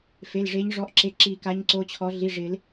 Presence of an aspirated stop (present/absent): present